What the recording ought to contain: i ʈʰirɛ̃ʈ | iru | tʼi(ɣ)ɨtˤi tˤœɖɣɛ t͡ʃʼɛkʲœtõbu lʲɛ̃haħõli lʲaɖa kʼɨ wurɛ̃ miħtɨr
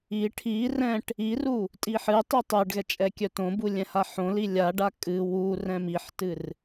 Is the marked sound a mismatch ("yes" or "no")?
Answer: yes